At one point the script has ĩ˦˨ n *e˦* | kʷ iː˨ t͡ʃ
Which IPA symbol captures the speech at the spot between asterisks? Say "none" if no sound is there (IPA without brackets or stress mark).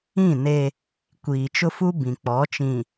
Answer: e˦